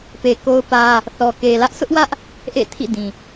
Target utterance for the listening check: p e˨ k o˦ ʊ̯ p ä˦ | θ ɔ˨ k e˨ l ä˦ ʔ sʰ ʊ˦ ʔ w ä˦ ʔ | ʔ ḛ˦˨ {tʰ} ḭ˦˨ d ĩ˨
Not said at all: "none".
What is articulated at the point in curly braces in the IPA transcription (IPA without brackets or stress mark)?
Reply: tʰ